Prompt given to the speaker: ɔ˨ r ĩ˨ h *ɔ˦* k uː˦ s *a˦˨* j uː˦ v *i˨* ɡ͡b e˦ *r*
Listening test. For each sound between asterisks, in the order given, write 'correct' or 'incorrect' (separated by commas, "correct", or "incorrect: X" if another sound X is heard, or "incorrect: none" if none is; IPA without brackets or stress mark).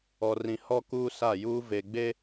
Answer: correct, correct, incorrect: e˨, incorrect: none